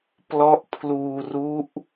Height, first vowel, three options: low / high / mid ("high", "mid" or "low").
mid